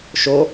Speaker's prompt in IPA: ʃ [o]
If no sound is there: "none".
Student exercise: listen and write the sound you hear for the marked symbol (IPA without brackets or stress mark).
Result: o